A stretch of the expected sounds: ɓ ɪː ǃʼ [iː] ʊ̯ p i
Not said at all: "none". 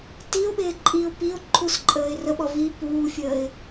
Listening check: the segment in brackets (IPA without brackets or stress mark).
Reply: iː